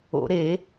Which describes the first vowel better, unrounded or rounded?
rounded